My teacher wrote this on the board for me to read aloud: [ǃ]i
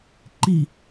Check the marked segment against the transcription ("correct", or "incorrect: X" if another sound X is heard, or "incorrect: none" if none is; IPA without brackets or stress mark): correct